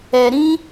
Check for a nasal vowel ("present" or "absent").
present